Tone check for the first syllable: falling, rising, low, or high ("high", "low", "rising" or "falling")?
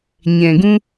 low